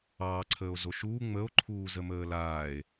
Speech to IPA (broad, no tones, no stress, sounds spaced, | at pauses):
ɑː ǀʰ əː o̯ z o ʃ uː ŋ͡m ə o̯ ǃʰ uː z ə m əː l aː e̯